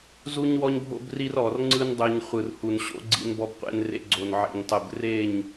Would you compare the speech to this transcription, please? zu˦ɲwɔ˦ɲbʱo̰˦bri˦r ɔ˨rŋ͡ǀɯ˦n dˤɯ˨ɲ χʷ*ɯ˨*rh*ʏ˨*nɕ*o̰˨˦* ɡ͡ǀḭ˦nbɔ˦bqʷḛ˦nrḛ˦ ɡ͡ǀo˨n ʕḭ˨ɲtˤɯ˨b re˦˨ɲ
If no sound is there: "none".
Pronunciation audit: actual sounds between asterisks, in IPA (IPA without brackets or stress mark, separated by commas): ɯ˨, u˨, o̰˨˦